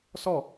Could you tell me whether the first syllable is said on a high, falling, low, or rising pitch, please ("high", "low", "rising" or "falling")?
falling